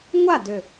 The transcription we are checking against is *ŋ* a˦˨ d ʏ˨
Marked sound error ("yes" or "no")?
yes